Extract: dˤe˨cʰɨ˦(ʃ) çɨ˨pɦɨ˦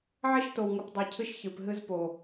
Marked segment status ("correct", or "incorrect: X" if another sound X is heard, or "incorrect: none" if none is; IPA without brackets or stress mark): correct